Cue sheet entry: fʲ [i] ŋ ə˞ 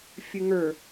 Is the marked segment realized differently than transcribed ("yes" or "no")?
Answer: yes